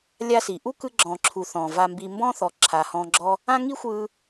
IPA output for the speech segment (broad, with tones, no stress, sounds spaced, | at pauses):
lʲ a˦ s i˨ ʔ u˦ k ɯ˧ ɡ͡ǁ ɔ̃ː˨ ǁʰ u˨ θ ɔ̃ː˨ v a˧ m b i˧ m b ɔ̃˦ θ ɔ˨ ǁʰ aː˨ h ɔ̃ː˧ ɡ͡ǁ ɔ˦ | ã˦ ŋ i˦ xʷ ɯː˧